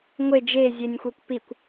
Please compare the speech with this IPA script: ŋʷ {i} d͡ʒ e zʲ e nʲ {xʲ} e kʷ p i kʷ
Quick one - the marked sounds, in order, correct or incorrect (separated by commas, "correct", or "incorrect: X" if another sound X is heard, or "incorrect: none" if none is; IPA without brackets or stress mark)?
incorrect: e, incorrect: xʷ